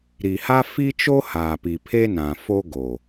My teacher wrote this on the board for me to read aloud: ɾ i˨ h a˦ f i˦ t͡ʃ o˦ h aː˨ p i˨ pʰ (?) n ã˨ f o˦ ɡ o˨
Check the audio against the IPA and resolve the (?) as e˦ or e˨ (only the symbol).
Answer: e˦